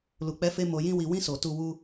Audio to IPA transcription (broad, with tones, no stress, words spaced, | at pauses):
lu˨k͡pɛ˨˦fe˧ mo˧jĩ˦wi˧ wĩ˧so˨ tu˧ wu˧